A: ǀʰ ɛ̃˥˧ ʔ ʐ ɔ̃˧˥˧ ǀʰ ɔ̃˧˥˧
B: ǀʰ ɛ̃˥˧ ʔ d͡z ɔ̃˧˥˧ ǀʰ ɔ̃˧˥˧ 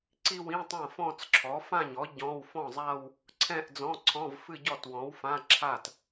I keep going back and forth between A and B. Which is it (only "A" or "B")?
B